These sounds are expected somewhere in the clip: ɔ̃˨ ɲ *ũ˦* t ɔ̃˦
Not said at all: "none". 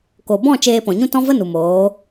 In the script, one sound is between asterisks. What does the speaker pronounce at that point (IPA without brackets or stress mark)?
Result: ũ˦